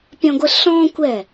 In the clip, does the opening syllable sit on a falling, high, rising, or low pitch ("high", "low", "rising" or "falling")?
high